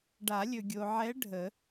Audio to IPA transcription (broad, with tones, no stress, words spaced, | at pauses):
ɖa˨˩˦lʲɵ˨ɡʲo˨ʕɛ˧˥ ɖʱə˨˩˦